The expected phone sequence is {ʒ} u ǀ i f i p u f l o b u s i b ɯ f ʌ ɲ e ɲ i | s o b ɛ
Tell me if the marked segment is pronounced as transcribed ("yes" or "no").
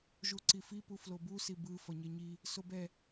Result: yes